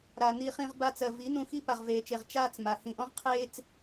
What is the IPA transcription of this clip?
ɾa˨ ni˧χĩ˧ʁ ba˧t͡sɜ˨ vi˨˦nũ˧xi˦ pa˨ʁveː˨t͡ʃe˨ʁ t͡ʃaː˦t͡sma˨ hĩ˨ʔɔ̃˦ʁqʰeː˦t͡s

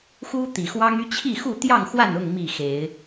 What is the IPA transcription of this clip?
xu˦t̪i˨˩xwɑ˦ŋy˦ t͡ɕʰi˥˨xu˥˨ t̪jɑ˥˨ŋxwa˥˨nʊ˥˨ŋ mi˥˨xe˨˦ɪ̯

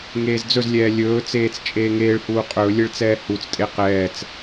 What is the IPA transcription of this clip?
ŋeːzd͡zɵzlʲɛː lʲɵːt͡seːt͡s t͡ʃʼeːŋeːɭhuː qʼɵlʲeɭ t͡sɛːhut͡stʼe qɛːt͡s

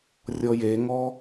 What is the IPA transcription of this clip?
rʲɔjeŋɔ

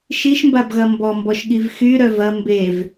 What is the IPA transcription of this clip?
ʃiʃmbabɣɐ mbɔmbɔʃɠiv xyɾœ vɐ mbev

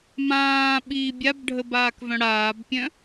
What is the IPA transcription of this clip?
mãːɓiː bʲabɖʱəbaːkvœ̃ ɽaːbpʲœ̃

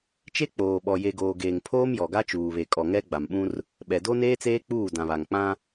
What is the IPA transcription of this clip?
t͡ʃe˦k͡poː˨ɓɔ˨ je˨ɡoː˨ ɡeː˨ŋpʰoː˦mjɔ˨ɡa˦ t͡ʃuː˨βe˨kʼɔ˨ ŋɛ˦ɡ͡ba˨mɓũ˦r | ɓɛ˨do˦neː˦t͡seː˦ k͡puː˦˨dã˨βa˨ŋ k͡pã˦

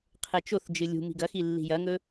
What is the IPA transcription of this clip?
qʰet͡ʃoθd͡ʒɨ lʲṳ mi̤ɡɐxi lːi̤jɐŋɵ

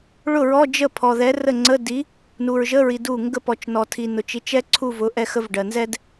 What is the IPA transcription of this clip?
ɭʊ˥˩ɹɔ˧˥˧d͡ʒə˥˩ pʰɔ˨ðɛ˨˥rə˥˩ ŋ͡ǀə˧˥˧di˨˥ | nu˨ɹʒə˧˥˧ɹi˨ du˥˩ ŋɡə˥˩p ɔ˨t͡ʃnɔ˨tʰi˨ nʊ˨t͡ʃi˨˥t͡ʃɛ˥ ǀʰu˥˧vʊ˨˥ ʔɛ˥xə˥v ɖɜ˨nzɛ˥d

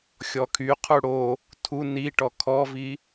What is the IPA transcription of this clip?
xʲɔkʰyqʰu ɽo | tʰu niʈɔ kʰɔvi

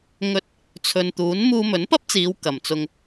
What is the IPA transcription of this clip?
ŋɵ˧t̚ | t͡sʰɵ˨nt̪uː˨˥n muː˧mɵ˨˥npɐ˥p̚t͡siː˨˧w kɐ˨mt͡sʊ˧ŋ

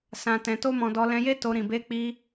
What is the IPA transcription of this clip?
sã˧tɛ̃˧to˦mɔ̃˧ dɔ˧lɛ̃˧je˦ to˧ ɾĩ˨be˧k͡pi˧

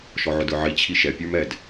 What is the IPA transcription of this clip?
ʃɔʕʊdə˞ʕi t͡ɕʰiʃɛ pʲə˞mɛd

